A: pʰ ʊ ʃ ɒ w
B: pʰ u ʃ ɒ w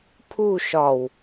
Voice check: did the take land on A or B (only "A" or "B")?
B